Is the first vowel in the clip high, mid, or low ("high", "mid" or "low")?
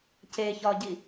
mid